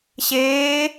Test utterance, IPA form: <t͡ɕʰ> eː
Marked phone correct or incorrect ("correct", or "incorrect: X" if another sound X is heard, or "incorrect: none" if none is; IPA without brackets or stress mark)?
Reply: incorrect: ɕ